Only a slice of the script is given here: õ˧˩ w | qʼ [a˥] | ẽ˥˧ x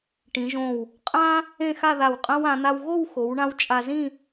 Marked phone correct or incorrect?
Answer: incorrect: ã˥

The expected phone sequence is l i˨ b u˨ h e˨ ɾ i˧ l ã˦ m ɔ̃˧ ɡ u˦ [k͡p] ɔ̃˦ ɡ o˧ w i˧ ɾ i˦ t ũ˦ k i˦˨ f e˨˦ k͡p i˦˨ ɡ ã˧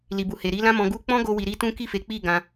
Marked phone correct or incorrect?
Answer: correct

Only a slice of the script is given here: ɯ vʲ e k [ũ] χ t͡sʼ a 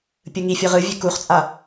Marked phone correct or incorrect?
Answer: incorrect: u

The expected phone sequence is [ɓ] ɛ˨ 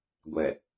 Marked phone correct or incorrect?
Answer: incorrect: ɡʷ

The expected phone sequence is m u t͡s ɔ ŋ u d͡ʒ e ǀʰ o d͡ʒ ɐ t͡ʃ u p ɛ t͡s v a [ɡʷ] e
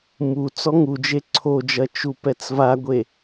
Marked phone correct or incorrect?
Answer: correct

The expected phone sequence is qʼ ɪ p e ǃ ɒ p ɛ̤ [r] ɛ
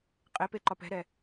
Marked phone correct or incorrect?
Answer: incorrect: ɾ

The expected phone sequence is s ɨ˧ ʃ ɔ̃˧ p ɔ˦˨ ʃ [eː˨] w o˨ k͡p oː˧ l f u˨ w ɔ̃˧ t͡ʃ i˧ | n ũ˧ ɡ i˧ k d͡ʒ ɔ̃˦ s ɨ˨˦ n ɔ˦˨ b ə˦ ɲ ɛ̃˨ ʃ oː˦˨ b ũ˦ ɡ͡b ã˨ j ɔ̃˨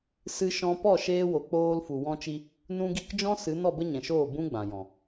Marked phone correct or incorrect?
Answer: incorrect: eː˧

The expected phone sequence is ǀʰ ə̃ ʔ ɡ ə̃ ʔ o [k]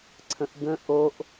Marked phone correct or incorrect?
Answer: incorrect: ʔ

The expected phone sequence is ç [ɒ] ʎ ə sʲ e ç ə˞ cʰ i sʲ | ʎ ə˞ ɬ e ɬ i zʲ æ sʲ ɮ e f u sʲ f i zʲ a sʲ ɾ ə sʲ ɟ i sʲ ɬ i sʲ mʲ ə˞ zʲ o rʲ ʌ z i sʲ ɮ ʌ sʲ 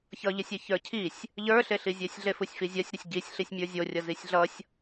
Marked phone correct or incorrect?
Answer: incorrect: ʌ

